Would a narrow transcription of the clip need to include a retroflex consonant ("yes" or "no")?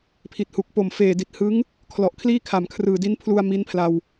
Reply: no